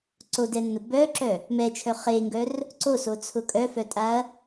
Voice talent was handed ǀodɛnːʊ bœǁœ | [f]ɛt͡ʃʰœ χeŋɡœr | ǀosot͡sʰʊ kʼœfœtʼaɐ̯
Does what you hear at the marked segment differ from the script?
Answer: yes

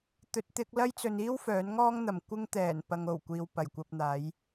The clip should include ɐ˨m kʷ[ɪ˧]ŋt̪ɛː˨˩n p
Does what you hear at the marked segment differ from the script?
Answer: no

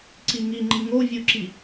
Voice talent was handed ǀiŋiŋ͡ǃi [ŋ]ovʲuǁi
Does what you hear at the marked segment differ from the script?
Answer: no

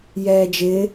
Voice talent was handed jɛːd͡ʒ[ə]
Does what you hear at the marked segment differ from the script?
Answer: yes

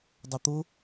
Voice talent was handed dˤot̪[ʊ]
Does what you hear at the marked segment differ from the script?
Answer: no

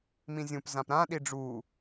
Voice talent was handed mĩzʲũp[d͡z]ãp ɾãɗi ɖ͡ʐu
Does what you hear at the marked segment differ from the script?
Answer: yes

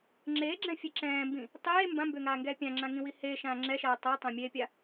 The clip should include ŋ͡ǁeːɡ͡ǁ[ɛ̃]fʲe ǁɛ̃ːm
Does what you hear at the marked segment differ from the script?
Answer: no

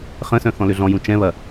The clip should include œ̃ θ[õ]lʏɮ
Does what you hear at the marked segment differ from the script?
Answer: yes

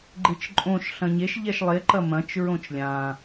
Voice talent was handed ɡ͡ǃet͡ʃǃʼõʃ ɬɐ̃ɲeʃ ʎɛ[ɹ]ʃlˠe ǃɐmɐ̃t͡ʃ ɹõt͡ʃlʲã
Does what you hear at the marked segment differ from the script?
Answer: yes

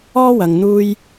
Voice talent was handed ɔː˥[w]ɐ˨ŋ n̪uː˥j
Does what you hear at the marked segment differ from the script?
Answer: no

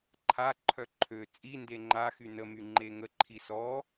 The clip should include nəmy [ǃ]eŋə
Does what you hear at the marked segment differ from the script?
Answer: yes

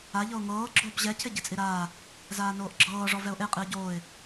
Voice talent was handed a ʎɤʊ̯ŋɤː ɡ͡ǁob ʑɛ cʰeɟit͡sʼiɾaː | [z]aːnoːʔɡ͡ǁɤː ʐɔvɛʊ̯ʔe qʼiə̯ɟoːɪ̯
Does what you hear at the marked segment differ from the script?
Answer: no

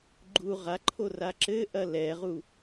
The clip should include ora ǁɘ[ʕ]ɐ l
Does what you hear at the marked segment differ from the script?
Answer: yes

